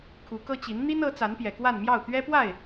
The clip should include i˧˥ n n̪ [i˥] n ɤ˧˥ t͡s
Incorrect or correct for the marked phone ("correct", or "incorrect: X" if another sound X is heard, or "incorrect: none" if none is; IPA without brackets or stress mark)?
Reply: correct